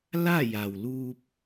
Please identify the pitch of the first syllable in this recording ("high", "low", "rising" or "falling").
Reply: falling